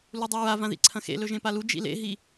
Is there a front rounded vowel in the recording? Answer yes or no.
no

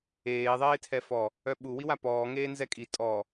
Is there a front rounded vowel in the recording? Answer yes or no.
yes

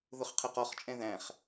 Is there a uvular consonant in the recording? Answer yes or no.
yes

